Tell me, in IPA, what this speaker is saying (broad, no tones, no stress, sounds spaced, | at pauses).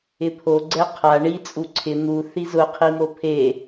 ɪ pʰ o ɡ͡ǀ ɛ qʰ a ɳ i t͡sʼ u ǀʰ ɪ n̪ u θ i z ʊ qʰ i m o pʰ e